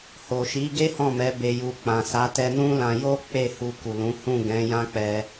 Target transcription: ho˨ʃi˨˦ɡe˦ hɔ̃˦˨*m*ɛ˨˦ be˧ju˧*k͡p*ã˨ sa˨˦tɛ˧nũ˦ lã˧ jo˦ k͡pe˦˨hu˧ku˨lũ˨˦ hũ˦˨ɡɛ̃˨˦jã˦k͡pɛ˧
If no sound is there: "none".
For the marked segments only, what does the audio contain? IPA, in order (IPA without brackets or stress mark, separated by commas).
m, k͡p